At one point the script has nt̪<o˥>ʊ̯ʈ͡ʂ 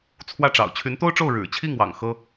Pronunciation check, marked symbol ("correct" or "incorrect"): correct